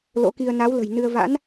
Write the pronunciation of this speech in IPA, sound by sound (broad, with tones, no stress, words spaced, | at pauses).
lo̰˧˥ki˧ə̯ na˨˦wlə̤˨˩j nɨ˧ə̯ va̰˧˥n